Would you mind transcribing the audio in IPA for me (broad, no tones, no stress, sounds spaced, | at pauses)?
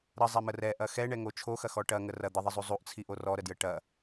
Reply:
ɾ ə zˤ ɛ m ə r ɛ ʔ ɐ x ɛ ɳ ɛ ŋ o t͡ʃʰ o x ɐ x ɔ ʈ ɐ ŋ ə r ɐ d̪ ə ðˤ ə zˤ u zˤ u ʔ t͡sʰ i ʔ o r ɔ ɾ ə d j ə ʈ ɐ